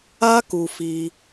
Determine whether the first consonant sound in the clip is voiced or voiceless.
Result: voiceless